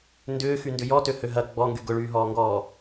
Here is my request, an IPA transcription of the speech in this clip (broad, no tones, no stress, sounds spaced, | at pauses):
n d ʏː x y n d ʏ j ɔ t ø h ø ɦ ɐ ɡ͡b ɔ ŋ ɡ y ɡ ʊ ɭ yː ɦ ɔː ŋ ɡ ɔː